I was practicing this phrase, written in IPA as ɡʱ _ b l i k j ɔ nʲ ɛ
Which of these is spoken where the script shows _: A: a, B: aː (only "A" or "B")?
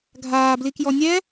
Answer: B